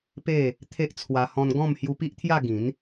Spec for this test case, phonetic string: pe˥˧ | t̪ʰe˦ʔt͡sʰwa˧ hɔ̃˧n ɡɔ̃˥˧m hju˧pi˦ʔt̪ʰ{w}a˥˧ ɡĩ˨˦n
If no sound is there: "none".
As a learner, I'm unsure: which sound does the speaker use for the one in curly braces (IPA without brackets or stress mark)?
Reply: j